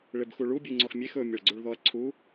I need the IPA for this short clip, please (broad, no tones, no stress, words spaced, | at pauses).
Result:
ɭebxuɭu bʲuŋ͡ǀɔxmʲex ɵ mʲeɭɡ͡ǀuɭðɔɐ̯ǀʰu